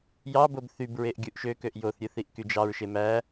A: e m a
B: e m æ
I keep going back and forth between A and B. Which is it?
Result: B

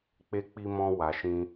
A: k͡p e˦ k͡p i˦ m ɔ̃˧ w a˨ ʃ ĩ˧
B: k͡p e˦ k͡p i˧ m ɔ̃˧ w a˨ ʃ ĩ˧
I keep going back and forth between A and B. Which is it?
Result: B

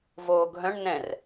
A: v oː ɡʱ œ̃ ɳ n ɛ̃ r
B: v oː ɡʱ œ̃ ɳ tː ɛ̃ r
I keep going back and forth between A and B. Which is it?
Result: A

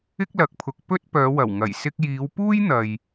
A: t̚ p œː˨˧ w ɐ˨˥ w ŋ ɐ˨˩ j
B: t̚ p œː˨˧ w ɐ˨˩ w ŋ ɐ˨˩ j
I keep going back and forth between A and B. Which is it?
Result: B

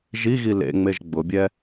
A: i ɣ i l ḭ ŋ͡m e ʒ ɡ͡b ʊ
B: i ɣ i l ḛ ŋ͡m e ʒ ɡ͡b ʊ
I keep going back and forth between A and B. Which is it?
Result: B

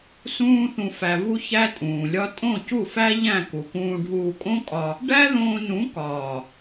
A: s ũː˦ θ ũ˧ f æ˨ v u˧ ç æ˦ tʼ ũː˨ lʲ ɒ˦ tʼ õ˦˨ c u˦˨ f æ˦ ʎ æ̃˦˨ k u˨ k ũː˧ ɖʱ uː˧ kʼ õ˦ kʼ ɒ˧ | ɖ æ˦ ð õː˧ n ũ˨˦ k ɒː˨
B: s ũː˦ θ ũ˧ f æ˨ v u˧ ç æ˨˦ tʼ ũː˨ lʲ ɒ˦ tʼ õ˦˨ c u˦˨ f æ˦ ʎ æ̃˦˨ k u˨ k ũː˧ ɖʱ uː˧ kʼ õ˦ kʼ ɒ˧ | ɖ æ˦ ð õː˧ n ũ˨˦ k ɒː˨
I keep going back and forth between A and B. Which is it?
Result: A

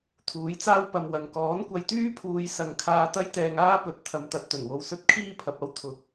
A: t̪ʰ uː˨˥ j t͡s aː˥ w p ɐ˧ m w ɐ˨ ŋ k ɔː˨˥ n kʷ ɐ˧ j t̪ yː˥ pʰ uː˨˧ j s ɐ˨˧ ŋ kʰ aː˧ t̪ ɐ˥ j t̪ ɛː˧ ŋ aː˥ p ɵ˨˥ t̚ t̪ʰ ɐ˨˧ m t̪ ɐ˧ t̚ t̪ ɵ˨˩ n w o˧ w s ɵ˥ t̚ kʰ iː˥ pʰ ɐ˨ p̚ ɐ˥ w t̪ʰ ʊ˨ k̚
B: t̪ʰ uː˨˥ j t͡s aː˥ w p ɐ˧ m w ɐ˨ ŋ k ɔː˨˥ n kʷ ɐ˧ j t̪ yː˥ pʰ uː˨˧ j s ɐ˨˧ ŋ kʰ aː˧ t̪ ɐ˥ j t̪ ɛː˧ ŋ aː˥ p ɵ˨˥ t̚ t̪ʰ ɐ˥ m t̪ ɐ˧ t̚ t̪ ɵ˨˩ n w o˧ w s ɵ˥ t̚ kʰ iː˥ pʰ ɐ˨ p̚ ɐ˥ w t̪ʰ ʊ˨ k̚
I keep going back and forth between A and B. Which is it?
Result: A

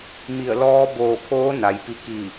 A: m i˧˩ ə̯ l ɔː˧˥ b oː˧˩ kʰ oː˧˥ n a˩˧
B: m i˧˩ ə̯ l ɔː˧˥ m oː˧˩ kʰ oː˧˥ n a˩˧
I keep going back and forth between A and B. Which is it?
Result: A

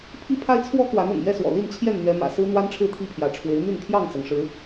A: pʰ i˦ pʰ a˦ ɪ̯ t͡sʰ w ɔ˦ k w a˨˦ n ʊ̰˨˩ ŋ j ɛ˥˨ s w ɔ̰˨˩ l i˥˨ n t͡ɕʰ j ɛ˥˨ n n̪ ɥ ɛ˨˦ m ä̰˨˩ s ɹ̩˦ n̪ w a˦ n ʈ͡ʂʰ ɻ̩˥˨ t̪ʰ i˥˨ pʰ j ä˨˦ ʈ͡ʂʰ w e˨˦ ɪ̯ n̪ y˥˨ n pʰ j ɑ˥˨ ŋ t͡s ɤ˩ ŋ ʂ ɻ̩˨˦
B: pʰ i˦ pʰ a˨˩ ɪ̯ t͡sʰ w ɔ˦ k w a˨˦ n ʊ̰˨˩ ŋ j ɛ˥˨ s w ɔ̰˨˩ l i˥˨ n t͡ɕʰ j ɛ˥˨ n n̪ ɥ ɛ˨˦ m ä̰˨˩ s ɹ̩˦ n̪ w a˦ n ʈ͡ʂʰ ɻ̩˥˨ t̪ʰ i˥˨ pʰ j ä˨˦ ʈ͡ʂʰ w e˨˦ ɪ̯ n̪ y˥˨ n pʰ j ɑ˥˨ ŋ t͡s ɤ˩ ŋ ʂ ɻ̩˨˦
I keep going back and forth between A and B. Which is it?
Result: A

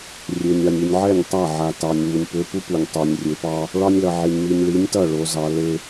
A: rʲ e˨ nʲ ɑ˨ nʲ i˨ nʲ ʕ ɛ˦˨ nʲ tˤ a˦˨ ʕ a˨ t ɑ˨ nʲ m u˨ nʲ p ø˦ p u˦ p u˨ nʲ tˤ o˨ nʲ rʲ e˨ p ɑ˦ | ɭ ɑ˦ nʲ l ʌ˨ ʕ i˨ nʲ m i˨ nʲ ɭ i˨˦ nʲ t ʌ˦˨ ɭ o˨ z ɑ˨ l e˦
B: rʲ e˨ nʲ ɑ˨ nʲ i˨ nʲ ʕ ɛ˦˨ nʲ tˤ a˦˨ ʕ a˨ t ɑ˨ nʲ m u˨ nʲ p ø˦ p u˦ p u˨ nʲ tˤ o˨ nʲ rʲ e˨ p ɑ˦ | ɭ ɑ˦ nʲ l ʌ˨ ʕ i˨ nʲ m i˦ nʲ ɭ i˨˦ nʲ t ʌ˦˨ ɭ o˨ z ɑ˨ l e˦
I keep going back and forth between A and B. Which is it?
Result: A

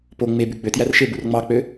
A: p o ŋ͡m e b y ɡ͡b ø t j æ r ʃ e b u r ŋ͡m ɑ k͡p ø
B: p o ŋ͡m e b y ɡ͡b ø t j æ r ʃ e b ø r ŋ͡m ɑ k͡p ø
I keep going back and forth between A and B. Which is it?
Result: A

